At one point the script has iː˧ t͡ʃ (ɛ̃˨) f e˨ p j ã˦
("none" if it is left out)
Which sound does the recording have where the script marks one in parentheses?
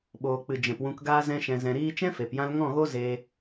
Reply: ɛ̃˦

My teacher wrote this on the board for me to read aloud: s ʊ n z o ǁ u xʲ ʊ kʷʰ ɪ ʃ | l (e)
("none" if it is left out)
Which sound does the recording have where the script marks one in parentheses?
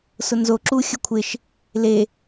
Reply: e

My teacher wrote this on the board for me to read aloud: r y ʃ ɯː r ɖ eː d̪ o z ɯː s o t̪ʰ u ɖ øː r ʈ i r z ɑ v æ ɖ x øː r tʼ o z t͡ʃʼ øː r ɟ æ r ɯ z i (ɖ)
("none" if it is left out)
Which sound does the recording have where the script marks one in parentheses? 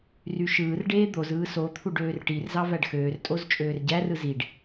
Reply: ɖ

